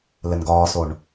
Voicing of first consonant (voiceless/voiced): voiced